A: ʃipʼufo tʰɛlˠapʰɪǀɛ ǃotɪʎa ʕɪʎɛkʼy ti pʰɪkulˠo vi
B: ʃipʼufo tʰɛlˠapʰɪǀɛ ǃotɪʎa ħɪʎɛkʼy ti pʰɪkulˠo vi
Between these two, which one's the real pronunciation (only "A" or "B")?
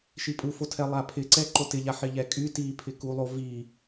B